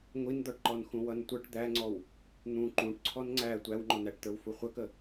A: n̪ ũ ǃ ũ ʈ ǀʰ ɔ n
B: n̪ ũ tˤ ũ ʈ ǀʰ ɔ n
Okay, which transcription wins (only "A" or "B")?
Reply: A